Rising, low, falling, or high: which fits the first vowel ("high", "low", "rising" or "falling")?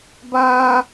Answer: high